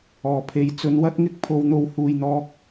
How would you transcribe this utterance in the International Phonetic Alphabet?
ɔː˨˩ pʰ e˨˥ j t͡s ɵ˨˥ n w ɐ˥ t̚ ŋ ɪ˥ k̚ pʰ o˧ w n̪ o˧ w h uː˨ j n̪ ɔː˧ k̚

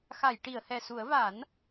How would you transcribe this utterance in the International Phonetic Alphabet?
x a˨˩˨ j ʈ i˨˩˨ ə̯ h ɛ˨˩ s u˨˩˦ ə̯ v a˨˩˦ n

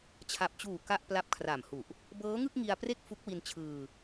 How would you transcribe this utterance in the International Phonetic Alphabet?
t͡ɕʰ a˨˩ p̚ t͡ɕ uː˨˩ k a˥˩ ʔ p l a˦˥ p̚ kʰ r a˨˩ m h u˨˩ ʔ | b ɤː˦˥ ŋ ɯ˥˩ k̚ ŋ i˧ a̯ p r e˥˩ k̚ f u˦˥ k̚ w i˧ n t͡ɕʰ ɯː˧

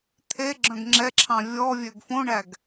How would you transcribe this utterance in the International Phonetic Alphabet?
t̪ʰ e ɡ͡ǁ œ̃ ɡ ŋ͡ǁ ɛ ǁʰ ɑ̃ vʲ ɔ vʲ ø ɡ f õ ɳ æ ɡ

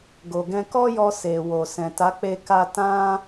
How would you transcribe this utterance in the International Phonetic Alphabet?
ɡ o˨ ɡ ɛ̃˧ k ɔ˦ j ɔ˧ s e˨ w o˨ s ɛ̃˨ t a˨˦ k͡p e˧ k a˧ t ã˦

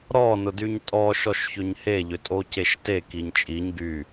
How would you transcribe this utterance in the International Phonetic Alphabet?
ɾ ɔ n ʊ d y ɲ tʼ ɔ ʃ ɔ ʃ ç ʏ ɲ h e ʎ ʏ tʼ o c e ʃ t e k i ɲ t͡ʃʼ i ɲ ɡ y

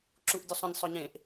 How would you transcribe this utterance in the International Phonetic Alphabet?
ǁ u ʔ dʲ u sˤ ə̃ nʲ sˤ œ ɲ ẽ ʔ

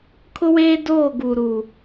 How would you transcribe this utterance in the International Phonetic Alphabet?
kʰ ʊ˦ w eː˦ d oː˦˨ ɡ uː˨ ɾ u˨

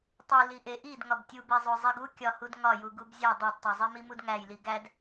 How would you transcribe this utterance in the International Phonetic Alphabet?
tˤ u l i ʔ e ʔ i d ŋ ɒ b tʲ u b e zˤ o zˤ i ɡ u kʲ ɒ h u d ŋ ɒ j u ɡ u b zʲ æ dˤ o d tˤ o zˤ i m i m u d ŋ æ j l i ɡ æ d

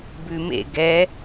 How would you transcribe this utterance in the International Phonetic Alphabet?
b ʉ m ḛ ɡ ɛ

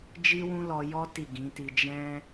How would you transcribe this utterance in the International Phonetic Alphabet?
d͡ʒ i˦ w ũ˦ l ɔ˧ j ɔ˦ t i˦˨ ɡ ĩ˨˦ t i˧ d͡ʒ ɛ̃˦

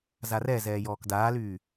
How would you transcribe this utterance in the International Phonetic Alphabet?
z a r ɛ z ɛː j ɔː k d aː l yː

